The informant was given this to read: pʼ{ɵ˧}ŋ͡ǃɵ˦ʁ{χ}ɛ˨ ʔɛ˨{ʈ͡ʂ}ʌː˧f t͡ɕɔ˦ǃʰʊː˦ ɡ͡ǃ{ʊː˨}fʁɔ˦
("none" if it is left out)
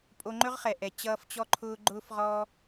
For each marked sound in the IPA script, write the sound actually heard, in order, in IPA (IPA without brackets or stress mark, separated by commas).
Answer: o˧, χ, t͡ɕ, ʊː˦